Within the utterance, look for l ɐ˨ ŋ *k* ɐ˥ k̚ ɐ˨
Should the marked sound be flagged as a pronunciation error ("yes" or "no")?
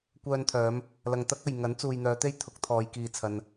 yes